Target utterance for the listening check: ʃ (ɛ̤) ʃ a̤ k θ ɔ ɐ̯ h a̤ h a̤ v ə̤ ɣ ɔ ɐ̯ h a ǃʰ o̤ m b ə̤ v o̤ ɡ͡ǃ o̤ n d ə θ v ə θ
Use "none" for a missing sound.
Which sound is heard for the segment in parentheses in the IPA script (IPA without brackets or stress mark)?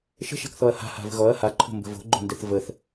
ə̤